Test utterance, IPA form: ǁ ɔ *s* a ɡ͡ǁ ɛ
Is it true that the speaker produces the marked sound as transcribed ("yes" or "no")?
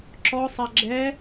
no